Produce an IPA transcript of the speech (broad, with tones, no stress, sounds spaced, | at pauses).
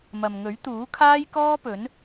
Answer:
m ɐ˨ m ŋ ɵ˨˥ ɥ t̪ uː˨˥ kʰ aː˥ j k ɔː˥ p ɵ˨˥ n